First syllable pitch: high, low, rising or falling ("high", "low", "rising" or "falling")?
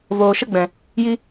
low